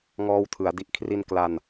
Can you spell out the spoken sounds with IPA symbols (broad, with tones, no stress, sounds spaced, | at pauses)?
ŋ ɔː˧ w tʰ ɯ˩˦ a̯ d i˨˩ ʔ kʰ r i˧ n k l a˧ n